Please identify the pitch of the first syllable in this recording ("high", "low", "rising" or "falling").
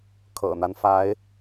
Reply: low